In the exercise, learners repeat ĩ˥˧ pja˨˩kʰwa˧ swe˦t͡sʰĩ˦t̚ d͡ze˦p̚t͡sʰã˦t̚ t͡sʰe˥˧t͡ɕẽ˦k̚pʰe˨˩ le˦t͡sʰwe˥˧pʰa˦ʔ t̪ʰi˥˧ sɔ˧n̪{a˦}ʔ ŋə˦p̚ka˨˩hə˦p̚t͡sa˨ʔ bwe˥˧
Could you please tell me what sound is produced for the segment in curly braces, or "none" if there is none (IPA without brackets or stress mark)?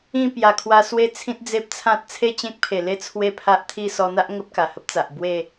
a˦